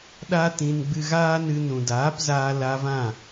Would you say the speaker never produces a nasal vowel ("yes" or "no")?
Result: no